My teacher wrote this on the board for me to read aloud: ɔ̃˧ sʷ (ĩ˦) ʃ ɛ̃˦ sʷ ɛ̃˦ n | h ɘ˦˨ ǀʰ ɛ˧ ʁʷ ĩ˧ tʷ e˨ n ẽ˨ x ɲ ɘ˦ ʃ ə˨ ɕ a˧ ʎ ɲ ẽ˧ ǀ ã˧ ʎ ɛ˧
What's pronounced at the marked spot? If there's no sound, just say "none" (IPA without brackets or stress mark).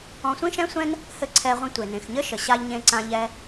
ĩ˦